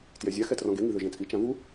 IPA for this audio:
t j ɛ zʲ a x ɛ t r ɔ̃ ɡ e ŋ i ð ø ʒ ẽ t͡sʼ i t͡ʃ ã v u

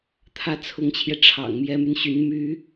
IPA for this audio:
t̪ʰ ä˥˩ t͡sʰ ʊ˧˥ ŋ t͡ɕʰ j ɛ˧ ʈ͡ʂʰ ɑ̰˨˩ ŋ m j ɛ˧˥ m y˧ n ɕ y˧˥ n m y˥

